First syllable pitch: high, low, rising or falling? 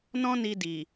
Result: high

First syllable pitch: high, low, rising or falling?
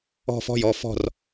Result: falling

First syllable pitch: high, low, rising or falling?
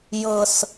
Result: low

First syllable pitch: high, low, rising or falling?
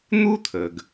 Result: high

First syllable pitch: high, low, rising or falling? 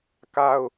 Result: high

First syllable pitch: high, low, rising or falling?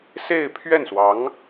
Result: falling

